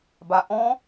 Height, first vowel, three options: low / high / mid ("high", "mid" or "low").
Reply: low